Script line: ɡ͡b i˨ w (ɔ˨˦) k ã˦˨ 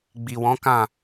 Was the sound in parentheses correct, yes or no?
no